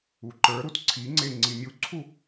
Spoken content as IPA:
uǃə˞ɾut ǀʰiŋ͡ǀe ŋ͡ǀimʲuǀʰu

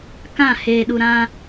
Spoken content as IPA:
kã˦˨ heː˨ɗu˨ɾã˦

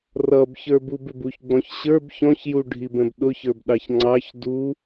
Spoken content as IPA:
rʌbçə˞bub ɪbuçɡ͡bɔ̃çɕə˞b çɔ̃çjuɖʱib ɛ̃bɗʊçə˞bɗɑç ŋ͡ǀɑç du

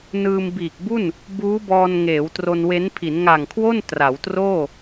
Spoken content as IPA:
nɯː˧mbiː˨˩k̚bu˥˩n | buː˦˥bɔː˧nŋeː˩˦w tro˧nwe˦˥npʰi˩˦n ŋa˨˩ŋkʰwo˥˩n tra˩˦w troː˥˩

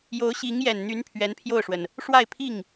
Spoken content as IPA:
jo˧˥ʊ̯ɕi˧˥ŋjɛ˨˩nn̪y˧˥n pʰɥɛ˧˥npʰjo˥˩ʊ̯ʂwə˩n | ʂwa˥˧ɪ̯pʰi˥˩ŋ

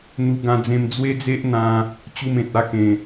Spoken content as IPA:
n̪u˧ɡã˧d͡zẽ˧m d͡zwe˦d͡ze˦ʔ n̪ã˧ | t͡ɕu˥˧mẽ˨t̚ a˥˧kẽ˨˩

